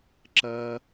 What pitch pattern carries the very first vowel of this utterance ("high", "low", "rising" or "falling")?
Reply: high